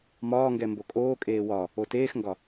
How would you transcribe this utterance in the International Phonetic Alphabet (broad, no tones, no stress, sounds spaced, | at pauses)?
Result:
m ɒː ŋ ɡ ɛ m b o kʼ oː kʼ eː w ɒ | o t eː x ŋ ɡ ɒ